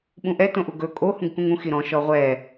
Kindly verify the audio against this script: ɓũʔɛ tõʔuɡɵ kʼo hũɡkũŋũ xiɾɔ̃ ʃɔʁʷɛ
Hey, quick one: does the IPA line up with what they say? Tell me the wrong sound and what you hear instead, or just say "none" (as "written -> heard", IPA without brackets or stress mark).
none